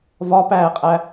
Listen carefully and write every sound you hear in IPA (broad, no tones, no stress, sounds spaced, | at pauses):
v ɒ p æː qʼ æ